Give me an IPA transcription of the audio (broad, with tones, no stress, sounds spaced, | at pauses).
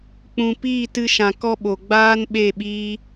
k͡p ũ˨ p iː˦˨ t ɨ˧ ʃ ã˨ k ɔ˧ ɓ o˨ ɡ͡b aː˦ n ɓ e˦˨ ɓ iː˦